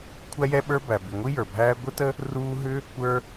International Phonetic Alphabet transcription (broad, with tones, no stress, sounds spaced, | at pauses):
kʷʰ æ˥ j ɛ˥ ɓ ə˞˥ b æ˩ b i˩ ŋʷ i˥ j ə˞˩ bʱ æː˥ ɡʷ ə˥ t ə˥ | r uː˥ ɦ ʏ˥ | kʷ ə˞˥